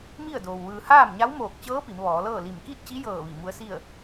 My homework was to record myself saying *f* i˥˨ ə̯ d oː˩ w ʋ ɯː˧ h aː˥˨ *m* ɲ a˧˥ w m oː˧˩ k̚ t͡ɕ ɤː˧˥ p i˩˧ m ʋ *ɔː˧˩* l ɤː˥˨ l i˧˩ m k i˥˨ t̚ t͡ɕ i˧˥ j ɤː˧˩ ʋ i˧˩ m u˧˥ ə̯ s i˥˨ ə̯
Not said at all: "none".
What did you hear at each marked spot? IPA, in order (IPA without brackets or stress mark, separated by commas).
m, m, ɔː˩˧